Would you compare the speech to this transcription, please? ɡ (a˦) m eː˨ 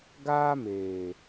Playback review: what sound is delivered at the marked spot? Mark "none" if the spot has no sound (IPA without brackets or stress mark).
aː˦